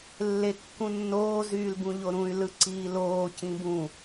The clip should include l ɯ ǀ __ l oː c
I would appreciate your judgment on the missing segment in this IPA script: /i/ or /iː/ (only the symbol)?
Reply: iː